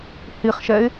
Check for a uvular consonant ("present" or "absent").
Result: present